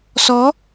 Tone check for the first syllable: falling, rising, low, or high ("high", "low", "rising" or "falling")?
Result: rising